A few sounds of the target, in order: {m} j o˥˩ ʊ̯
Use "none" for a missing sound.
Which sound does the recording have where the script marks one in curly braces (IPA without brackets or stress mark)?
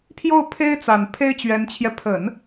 pʰ